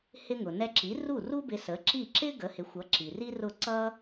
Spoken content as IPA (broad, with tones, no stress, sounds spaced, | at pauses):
h ɪ˧ ŋ ʊ˩ n ɛ˧ ǁ i˩˥ r u˥˩ r u˥ b ɪ˧ s ə˩˥ ǁ i˥˩ ǁ ɪ˥ ɡ ə˩˥ h ɪ˩˥ xʷ ʌ˩˥ ǁ i˩ r i˥ r ʊ˥˩ ǀ ʌ˥